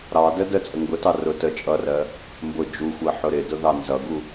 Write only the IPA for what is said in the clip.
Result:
ɾɑdə dət͡sʼə ŋɡʊtɑ rʊ tə t͡ʃʼʌrɜ | mbʊ d͡ʒuxʷɜ ħʊɾɪdʊ ðɑnzʌɡu

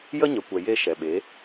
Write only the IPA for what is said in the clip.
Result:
jə˦ɲə˨kʷɛ˨ je˦ʃɛ˨ ɓe˨˦

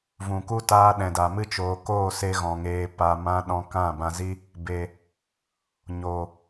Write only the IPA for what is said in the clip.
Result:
vũ˨ku˦ taː˧ ɗɛ̃˨da˨ mɨ˧t͡ʃoː˨ koː˦˨se˧ɣɔ̃˨ ŋeː˨pa˨mã˧ ɗɔ̃˧kã˦˨bã˧zi˦ | be˨ | ɲoː˨

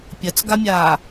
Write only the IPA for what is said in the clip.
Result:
pʲɐt͡sɡamʲaː

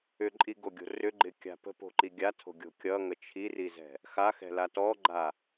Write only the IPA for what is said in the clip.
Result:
ʏǃʼiɡoɡʲo̤ rʏɡ͡ǃɪkʲa̤ pə̤po̤ǃi ɡʲatʰo̤ɡʲo̤ kʲʌŋə t͡ʃʰirizɛ̤ | xaxɛ̤la tɔɡ͡ǃa

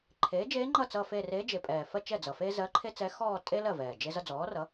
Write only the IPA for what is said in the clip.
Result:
ǃʰeː˩˥d͡ʒeː˧˥ŋ͡ǃʌ˥˩ t͡sʌ˥˧fe˥˧ reː˧˥d͡ʒe˨˩pʼɛː˨˩fɜ˥˧ t͡ʃɛ˥˩d͡zʌ˨˩feː˥ zɜ˧˥ǃʰe˥ t͡sɛ˧˥xɔː˥˧ tʼe˥ lɜ˥˩vɛː˨˩ d͡ʒe˥zʌ˥ d͡zɔː˩˥rʌ˩˥

